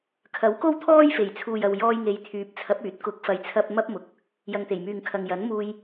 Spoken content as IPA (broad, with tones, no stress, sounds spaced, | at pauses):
kʰ ɐ˨˥ w k o˥ w t̪ʰ ɔː˥ j f e˨˩ j t͡sʰ uː˨ j ɐ˧ w j ɔː˧ j ŋ e˨˧ j t̪ʰ yː˨˥ p̚ t͡sʰ ɐ˨˥ p̚ yː˨˥ t̚ k ʊ˨˥ k̚ f ɐ˨ j t͡sʰ ɐ˧ p̚ m ɐ˥ p̚ m ʊ˨˥ k̚ | j ɐ˨ ŋ t̪ e˨˩ j m yː˨ ŋ kʰ ɐ˨ ŋ j ɐ˨˥ n m uː˧ j